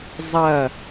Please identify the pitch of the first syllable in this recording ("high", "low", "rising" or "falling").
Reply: falling